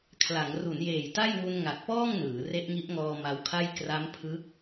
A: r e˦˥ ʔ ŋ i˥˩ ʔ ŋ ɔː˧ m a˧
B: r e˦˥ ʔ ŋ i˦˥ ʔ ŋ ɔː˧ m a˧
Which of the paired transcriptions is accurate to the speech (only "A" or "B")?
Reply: B